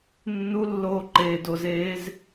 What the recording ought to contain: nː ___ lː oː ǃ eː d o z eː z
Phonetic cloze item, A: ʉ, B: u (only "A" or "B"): B